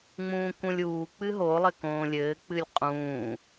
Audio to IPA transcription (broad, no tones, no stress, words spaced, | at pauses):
ŋ͡mũːkũlʲuː k͡pɨɦolˠɘ kõːlʲɘːk͡pɨlʲ qʼũː